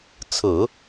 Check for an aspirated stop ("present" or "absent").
present